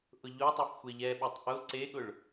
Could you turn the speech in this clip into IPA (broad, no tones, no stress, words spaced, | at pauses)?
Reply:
ʔʊʎotˤuf xʷeʎɛɓɛtˤ ʔʊ ǀeɠʊɭ